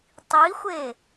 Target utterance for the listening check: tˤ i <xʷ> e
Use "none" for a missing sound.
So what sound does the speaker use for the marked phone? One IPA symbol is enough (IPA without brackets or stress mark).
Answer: xʷ